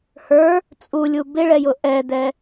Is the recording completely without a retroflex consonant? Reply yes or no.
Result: no